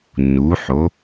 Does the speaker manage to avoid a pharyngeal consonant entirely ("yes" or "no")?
no